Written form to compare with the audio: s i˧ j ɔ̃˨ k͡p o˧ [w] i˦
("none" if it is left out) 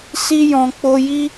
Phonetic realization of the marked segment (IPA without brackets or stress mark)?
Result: j